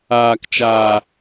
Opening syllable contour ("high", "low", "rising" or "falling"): low